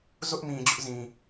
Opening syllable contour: high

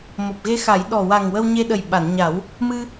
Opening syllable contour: low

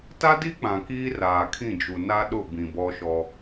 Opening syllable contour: high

